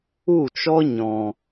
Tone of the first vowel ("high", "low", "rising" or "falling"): falling